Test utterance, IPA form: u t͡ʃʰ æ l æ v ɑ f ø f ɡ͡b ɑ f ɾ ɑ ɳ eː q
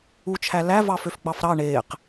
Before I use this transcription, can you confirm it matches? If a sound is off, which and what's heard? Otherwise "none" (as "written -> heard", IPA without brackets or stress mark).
none